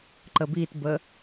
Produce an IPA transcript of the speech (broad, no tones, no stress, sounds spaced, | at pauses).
ǃ ə b i t b ə